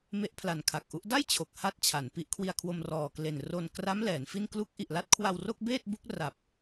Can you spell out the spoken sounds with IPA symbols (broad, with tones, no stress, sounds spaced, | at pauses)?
m e˦˥ ʔ pʰ l a˨˩ n kʰ a˨˩ k̚ ʔ u˦˥ ʔ d a˥˩ j t͡ɕʰ o˨˩ k̚ h a˥˩ t̚ t͡ɕʰ a˩˦ n p i˦˥ ʔ kʰ w i˧ a̯ kʰ w o˧ m r ɔː˨˩ k l e˨˩ n r o˧ n k r a˦˥ m l ɛː˩˦ n f i˥˩ n k l u˦˥ k̚ ʔ i˨˩ ʔ l a˦˥ t̚ kʰ w a˧ w r o˥˩ k̚ b eː˥˩ t̚ b u˦˥ k̚ r a˨˩ p̚